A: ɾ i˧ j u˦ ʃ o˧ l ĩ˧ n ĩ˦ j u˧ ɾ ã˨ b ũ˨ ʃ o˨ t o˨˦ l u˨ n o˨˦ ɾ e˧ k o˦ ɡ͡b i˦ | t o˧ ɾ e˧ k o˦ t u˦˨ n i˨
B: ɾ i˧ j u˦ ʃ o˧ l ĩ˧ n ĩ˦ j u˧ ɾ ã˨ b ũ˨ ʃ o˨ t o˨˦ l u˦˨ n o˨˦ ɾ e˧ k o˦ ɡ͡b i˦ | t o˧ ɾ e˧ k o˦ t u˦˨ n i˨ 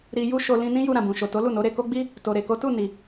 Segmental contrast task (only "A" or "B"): B